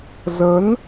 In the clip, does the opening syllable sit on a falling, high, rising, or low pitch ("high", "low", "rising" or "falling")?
rising